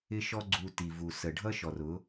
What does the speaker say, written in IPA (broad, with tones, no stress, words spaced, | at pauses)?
ɪ˦ʃɔ˦ɡ͡ǀu˧ ti˨vu˨ sə˨ɖʱʌ˦ ʃɔ˨rʊ˨˦